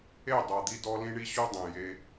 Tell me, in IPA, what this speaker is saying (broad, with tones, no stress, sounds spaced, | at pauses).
e˦˨ dˤ a˨ d̪ i˧ d ɔ˧ l ĩ˦ ɳ i˦ ɕ u˦ dˤ ẽ˨ j e˧